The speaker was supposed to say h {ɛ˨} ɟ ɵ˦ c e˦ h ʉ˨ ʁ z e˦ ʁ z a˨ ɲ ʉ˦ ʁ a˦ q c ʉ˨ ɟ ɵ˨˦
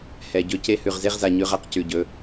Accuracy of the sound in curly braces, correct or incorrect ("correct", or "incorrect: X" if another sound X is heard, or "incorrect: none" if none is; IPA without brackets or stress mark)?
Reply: correct